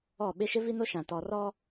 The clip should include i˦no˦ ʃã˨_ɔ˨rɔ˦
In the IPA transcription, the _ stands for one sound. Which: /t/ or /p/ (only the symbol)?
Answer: t